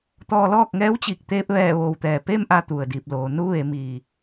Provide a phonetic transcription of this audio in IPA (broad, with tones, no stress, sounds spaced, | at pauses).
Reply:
t̪ ɔː˧ l ɔː˥˨ k̚ ŋ ɛː˧˥ w t͡ɕ i˧˩ k̚ t̪ eː˧ p̚ ʋ ɛː˧˩ ʋ oː˩ w t̪ ɛː˩ p e˥˨ m ʔ a˧ t̪ u˩ ə̯ d iː˧˩ p̚ l oː˩˧ n u˧˥ ʋ e˩˧ m iː˩